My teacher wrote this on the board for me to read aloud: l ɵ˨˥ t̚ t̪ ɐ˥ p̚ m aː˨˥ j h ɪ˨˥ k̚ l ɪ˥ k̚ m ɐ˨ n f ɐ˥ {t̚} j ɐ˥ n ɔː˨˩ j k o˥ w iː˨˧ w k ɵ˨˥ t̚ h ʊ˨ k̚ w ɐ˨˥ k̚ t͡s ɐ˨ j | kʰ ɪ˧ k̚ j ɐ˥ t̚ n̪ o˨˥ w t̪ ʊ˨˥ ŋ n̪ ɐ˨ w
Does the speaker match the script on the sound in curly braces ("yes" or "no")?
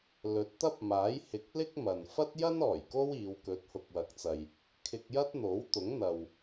yes